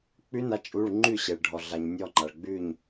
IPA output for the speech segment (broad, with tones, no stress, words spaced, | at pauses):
k͡pʉ˧˥na˩˧˩t͡ʃʼu˩˧˩ɭ ŋ͡ǃʉ˥˩ ɕe˩ɭɖʱɔ˩ɮa˩ɲ nʲɔ˥˩ŋ͡ǃa˩ɭɡ͡bʉ˥˩ɲ